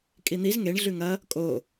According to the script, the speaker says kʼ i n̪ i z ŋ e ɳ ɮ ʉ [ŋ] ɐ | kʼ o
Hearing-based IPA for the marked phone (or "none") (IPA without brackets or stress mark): ŋ